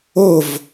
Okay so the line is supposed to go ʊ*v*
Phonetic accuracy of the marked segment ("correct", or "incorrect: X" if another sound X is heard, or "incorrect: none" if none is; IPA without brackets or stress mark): correct